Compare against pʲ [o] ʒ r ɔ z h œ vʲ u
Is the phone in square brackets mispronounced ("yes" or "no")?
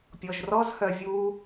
yes